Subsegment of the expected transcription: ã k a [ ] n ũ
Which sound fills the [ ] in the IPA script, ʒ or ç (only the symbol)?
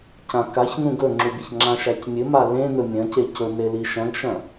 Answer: ç